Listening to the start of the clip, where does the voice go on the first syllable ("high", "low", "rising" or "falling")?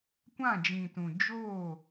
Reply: falling